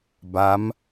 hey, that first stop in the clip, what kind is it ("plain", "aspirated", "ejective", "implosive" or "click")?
plain